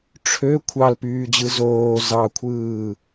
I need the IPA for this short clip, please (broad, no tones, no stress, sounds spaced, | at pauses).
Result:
ʈ͡ʂʰ ø kʷʰ ɑ l p yː d͡ʑ ɯ z oː z ɑ kʷʰ ɯː